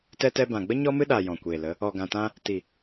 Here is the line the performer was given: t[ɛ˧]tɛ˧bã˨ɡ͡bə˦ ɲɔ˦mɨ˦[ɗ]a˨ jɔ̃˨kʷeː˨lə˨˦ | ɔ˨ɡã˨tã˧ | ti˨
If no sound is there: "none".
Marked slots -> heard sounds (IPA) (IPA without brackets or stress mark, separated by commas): ɛ˧, ɗ